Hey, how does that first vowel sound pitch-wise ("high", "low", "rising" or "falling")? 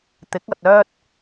rising